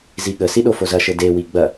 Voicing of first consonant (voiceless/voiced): voiced